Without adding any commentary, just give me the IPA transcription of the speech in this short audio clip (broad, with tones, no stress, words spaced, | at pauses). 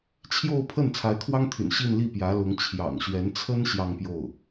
t͡ɕʰjo˥˧ʊ̯pʰə˥˩n t͡sʰa˧˥ɪ̯kʰwɑ˥ŋt̪ʰy̰˨˩n ɕi˥˧n li˥˩pjä˧˥lʊ˧˥ŋ t͡ɕʰjɑ̰˨˩ŋɕɥɛ˧˥nt͡sʰə˥n ɕjɑ˥˧ŋpjo˥˩ʊ̯